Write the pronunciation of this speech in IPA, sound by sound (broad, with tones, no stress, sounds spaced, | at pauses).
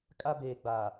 kʼ a˦ b eː˨ ɡ͡b aː˨